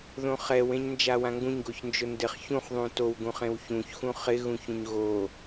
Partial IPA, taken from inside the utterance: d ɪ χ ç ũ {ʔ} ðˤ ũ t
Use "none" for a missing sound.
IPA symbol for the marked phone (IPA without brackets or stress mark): χ